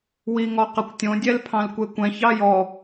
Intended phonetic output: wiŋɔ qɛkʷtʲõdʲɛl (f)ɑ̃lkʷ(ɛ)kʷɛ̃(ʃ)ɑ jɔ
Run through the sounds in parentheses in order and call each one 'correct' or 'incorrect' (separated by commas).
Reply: incorrect, incorrect, incorrect